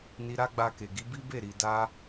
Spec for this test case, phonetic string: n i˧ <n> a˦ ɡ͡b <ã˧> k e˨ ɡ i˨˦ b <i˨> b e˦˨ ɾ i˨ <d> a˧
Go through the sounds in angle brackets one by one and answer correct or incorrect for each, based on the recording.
incorrect, incorrect, incorrect, correct

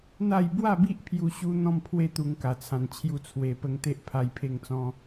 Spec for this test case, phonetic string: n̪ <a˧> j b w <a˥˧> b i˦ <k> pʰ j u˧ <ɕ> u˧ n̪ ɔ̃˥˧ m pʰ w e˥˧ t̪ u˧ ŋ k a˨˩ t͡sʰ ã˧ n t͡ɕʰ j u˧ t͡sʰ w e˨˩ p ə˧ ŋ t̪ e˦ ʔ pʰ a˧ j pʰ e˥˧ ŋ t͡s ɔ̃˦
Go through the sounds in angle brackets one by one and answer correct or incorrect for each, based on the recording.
incorrect, correct, incorrect, correct

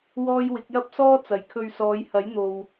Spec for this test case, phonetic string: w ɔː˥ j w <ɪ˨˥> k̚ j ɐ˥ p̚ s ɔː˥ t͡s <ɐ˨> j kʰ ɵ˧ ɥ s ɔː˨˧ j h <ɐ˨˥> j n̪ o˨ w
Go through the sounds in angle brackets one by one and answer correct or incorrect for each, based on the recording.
correct, correct, correct

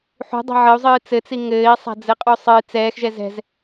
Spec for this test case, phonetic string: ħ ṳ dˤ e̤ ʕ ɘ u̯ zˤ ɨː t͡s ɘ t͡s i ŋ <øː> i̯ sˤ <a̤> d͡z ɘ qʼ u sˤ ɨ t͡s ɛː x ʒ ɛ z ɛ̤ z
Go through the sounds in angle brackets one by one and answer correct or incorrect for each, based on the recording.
incorrect, correct

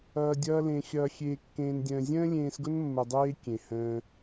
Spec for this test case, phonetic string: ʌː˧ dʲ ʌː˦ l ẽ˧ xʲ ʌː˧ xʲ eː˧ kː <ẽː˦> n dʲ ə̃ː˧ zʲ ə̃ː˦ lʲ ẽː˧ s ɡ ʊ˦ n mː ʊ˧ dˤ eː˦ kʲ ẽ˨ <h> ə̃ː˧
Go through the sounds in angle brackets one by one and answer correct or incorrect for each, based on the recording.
incorrect, correct

